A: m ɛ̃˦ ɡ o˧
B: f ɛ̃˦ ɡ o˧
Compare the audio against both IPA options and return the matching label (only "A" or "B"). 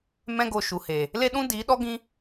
A